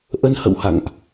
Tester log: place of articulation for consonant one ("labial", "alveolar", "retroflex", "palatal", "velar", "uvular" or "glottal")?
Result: glottal